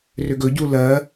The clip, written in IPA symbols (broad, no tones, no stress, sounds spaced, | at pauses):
r ʏ ɡ ɵ ɟ u l ɜ